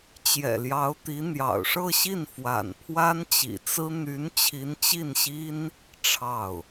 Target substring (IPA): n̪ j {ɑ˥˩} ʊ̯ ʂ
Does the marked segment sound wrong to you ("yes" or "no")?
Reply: yes